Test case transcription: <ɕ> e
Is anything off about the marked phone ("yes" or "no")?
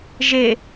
yes